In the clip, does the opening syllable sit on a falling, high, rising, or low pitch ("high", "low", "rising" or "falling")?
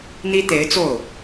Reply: high